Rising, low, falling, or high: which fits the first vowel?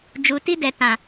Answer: low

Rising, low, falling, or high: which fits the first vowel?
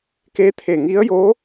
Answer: rising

